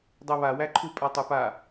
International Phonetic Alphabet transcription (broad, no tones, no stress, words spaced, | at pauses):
dˤɜβawæǃʰu pʼatˤupa